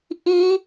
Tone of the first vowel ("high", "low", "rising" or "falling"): high